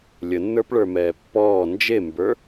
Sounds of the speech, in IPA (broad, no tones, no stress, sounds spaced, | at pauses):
lʲ ə nː ə˞ p ɭ ə˞ m ɛː pː ɔː n d͡ʒ e m b ə˞